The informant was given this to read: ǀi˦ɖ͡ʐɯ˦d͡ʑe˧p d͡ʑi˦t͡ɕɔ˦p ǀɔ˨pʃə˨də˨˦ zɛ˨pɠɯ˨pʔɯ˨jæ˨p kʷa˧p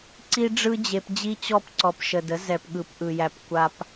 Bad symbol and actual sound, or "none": none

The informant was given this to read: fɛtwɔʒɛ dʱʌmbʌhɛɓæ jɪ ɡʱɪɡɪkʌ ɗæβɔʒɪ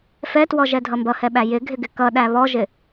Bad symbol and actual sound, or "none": none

